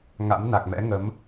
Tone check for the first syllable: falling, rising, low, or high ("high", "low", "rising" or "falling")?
rising